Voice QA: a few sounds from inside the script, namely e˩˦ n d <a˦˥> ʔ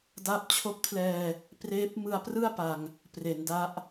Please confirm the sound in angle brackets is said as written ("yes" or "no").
yes